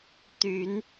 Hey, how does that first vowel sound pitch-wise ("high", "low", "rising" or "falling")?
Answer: rising